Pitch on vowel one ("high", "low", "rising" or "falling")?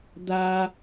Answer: high